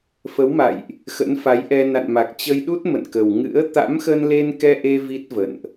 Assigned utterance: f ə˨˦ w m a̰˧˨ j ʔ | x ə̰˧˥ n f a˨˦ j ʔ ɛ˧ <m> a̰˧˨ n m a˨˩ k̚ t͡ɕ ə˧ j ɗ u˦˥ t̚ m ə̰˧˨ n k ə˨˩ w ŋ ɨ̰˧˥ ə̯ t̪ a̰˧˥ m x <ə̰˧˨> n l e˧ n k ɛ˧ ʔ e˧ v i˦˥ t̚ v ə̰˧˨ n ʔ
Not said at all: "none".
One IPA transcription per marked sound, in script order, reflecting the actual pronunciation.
n, ə˧

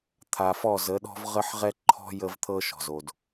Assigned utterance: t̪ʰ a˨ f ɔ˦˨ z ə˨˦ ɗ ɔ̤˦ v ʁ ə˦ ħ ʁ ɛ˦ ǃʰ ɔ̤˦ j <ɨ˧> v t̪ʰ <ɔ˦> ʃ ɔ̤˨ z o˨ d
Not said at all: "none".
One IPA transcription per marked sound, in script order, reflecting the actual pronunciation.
ə˧, ɤ˦

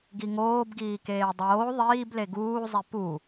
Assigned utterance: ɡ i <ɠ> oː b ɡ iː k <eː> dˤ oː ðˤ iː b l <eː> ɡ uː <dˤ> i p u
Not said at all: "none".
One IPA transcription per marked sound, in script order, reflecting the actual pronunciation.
ŋ, eː, e, zˤ

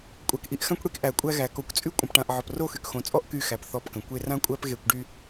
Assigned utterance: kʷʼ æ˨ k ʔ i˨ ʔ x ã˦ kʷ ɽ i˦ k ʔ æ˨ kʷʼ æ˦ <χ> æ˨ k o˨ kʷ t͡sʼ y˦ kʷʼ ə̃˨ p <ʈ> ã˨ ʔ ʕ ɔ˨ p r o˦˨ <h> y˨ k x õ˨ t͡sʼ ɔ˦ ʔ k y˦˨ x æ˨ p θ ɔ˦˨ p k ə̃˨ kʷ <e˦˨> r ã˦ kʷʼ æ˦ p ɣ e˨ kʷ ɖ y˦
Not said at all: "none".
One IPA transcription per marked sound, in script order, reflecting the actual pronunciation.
ɣ, ʈ, x, e˦

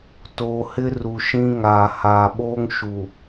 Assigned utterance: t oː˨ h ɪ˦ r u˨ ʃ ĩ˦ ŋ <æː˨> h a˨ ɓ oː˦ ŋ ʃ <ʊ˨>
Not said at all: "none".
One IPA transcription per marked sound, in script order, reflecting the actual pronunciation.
aː˨, u˨

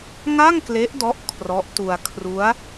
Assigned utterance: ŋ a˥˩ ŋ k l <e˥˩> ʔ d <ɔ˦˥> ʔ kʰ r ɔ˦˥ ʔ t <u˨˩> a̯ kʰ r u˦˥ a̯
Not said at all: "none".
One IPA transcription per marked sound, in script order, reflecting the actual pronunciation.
e˦˥, ɔ˦˥, u˧

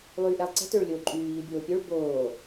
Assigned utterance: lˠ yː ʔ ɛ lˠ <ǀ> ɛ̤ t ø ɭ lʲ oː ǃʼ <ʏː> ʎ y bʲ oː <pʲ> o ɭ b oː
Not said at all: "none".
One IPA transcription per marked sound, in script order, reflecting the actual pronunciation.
ǀ, yː, pʲ

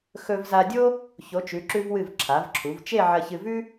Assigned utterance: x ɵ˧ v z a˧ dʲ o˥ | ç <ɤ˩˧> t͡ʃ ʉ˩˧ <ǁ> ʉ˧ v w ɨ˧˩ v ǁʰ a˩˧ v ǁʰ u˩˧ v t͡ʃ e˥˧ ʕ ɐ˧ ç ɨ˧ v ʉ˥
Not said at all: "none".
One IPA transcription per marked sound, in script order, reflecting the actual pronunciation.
o˩˧, ǁ

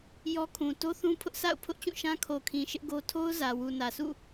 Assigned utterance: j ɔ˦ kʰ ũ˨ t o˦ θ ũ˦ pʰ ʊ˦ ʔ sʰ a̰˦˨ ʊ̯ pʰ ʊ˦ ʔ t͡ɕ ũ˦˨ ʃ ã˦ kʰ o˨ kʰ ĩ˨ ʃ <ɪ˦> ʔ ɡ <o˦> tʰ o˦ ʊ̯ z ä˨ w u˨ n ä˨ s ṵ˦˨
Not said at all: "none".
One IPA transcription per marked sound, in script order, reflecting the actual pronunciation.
ɪ˦, o˦

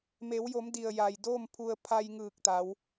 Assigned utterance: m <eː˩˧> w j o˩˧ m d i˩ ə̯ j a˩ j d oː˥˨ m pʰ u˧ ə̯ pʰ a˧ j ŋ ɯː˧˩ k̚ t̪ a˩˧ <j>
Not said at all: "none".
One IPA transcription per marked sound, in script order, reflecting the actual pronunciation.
e˩˧, w

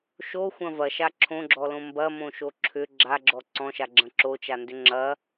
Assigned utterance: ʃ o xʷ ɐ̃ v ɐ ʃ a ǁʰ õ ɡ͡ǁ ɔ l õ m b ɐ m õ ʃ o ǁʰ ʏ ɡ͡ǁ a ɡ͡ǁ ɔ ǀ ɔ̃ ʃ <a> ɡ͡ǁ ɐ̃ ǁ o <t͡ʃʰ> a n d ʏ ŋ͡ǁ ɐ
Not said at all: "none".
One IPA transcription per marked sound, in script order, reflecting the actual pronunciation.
a, t͡ʃ

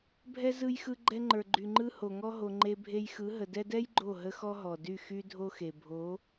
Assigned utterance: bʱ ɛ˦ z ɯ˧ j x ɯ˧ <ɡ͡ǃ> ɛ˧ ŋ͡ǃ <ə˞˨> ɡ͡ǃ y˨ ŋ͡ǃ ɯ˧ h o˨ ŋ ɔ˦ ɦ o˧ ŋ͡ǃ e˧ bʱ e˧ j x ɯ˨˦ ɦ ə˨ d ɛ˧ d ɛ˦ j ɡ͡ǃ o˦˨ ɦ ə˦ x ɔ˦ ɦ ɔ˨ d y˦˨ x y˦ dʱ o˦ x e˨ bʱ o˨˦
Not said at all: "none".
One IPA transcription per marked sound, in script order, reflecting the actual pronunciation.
ɡ͡ǃ, ə˞˨

